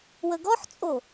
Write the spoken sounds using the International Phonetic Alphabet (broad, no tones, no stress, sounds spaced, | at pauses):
w ə ɡ ɔ ħ t͡sʼ o